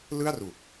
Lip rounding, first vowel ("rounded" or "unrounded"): unrounded